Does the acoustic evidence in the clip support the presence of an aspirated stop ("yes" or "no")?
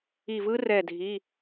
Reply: no